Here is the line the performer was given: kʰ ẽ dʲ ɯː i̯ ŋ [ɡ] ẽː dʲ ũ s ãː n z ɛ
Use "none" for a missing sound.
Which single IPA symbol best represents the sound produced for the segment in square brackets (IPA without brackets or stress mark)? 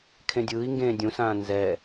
ɡ